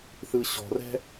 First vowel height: high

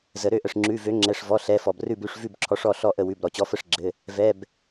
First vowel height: mid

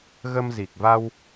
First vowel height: mid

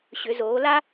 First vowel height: high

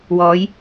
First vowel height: mid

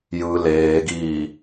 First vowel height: high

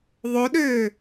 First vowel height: mid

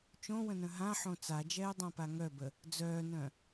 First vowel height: mid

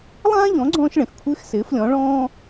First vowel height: low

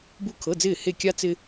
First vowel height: high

